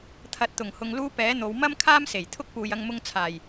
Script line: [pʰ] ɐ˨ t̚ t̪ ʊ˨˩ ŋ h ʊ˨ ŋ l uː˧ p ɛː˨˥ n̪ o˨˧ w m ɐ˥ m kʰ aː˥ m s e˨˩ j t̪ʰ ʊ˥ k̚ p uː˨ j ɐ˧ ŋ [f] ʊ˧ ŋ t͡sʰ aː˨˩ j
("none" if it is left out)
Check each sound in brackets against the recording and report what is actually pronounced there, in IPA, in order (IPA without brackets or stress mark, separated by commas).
t̪ʰ, m